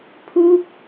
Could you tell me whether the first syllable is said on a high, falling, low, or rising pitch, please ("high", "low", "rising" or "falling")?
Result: falling